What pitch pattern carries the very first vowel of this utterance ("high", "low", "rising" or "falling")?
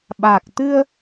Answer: low